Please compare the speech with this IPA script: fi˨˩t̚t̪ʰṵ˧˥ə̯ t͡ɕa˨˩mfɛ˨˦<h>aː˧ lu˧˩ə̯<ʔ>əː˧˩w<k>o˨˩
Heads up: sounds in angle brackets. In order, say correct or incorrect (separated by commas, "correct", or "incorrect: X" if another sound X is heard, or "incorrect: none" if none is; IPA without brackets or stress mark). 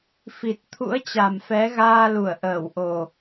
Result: incorrect: ɣ, correct, incorrect: ʔ